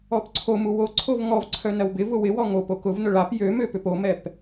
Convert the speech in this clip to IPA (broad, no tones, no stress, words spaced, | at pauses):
ɔpǀʰomu woǀʰov ŋɔvǀʰœ nɐwbɪvʊ wɪwɔ ŋop okʊvnʊ ɭap jømø pʏpomɛp